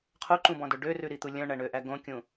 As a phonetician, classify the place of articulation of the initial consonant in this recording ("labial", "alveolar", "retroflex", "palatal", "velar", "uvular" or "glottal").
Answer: uvular